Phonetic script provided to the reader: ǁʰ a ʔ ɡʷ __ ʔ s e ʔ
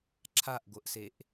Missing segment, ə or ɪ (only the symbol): ə